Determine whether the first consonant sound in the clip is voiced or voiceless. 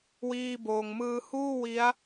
voiced